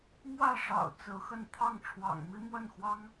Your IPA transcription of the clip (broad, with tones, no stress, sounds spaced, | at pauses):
m w ä˥˩ ʂ ɑ̰˨˩ ʊ̯ t͡s ɹ̩˧˥ x ə˥˧ n t̪ʰ ɑ˥˩ ŋ ʈ͡ʂʰ w ɑ̰˨˩ ŋ m i˥ m w ə˥˩ n x w ɑ˥ ŋ